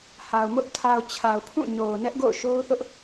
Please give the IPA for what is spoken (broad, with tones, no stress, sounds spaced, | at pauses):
h a˨ ʊ̯ m ʊ˦ ʔ tʰ a˨ ʊ̯ t͡ɕʰ a˨ ʊ̯ pʰ ũ˦˨ ɲ o˨ ʊ̯ n ɛ˦ ʔ ɡ o̰˦˨ ʊ̯ ʃ o˦ ʊ̯ θ ʊ˦ ʔ